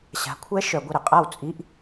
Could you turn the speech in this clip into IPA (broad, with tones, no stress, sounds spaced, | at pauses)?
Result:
ɕ a̤˨˥ kʷʰ ɛ˦˥ ʃ œ˨ ɡʷ ə˥˩ ɾ ə˨ qʼ a˥˩ w t͡sʼ i˧˥˧ ʔ